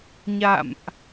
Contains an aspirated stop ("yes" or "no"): no